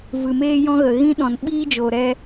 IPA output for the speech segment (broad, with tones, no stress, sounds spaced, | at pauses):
v ɨ˨ m eː˦ j ɔ̃˦ ɣ ə˨ ɣ ĩ˦ ɗ ɔ̃˨ n ɓ iː˦ d͡ʒ o˨ ɾ ɛ˧